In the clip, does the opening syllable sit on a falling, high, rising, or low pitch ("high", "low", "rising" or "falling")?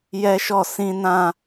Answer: high